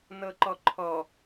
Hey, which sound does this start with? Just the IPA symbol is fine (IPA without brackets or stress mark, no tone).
n